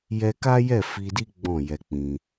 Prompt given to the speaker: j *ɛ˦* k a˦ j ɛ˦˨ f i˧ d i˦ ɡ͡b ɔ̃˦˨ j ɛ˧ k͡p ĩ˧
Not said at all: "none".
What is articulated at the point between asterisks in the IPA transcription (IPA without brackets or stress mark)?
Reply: ɛ˧